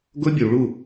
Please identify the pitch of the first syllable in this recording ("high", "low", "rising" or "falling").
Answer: high